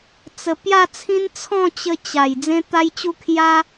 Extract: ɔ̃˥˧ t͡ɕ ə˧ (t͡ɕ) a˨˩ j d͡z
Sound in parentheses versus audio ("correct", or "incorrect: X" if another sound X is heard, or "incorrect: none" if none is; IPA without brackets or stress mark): correct